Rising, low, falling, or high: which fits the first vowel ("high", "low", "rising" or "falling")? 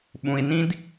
low